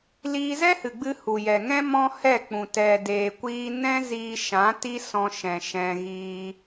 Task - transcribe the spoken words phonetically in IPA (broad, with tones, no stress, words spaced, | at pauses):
liː˧zɛ˦hɨ˨ɡ͡bɨ˧ hu˨jɛ˨ŋɛ̃˦ mɔ̃˦hɛ˦˨k͡pũ˨ tɛ˨deː˨kʷiː˧ nɛ̃˦ ziː˧ʃã˨˦ ti˦sɔ̃˧ʃɛ̃˨ ʃɛ̃˧ ɣiː˧